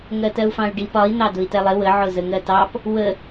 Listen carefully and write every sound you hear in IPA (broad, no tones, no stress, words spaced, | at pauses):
ŋɜtɜu̯fɑ̃y̯ɖip ɒi̯ n̪ɑdʊi̯tɛlˠɪ wə ʕʊzəŋɜtɑp | wə